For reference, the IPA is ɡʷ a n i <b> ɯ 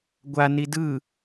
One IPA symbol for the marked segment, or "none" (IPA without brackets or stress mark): d